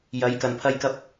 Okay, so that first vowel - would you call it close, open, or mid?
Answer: open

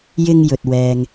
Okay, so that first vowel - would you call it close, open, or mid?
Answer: close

